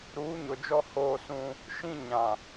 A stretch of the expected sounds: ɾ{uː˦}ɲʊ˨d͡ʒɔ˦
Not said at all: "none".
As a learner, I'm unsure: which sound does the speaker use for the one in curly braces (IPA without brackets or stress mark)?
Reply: uː˨˦